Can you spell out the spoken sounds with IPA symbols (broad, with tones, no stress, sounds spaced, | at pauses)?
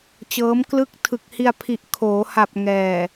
t͡ɕ ɤː˦˥ m k l ɯ˥˩ k̚ tʰ ɯ˨˩ k̚ h i˧ a̯ pʰ i˨˩ ʔ kʰ oː˩˦ h a˨˩ p̚ ŋ ɛː˨˩